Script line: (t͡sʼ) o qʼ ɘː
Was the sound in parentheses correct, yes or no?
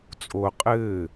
yes